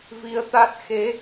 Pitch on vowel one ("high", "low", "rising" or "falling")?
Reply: rising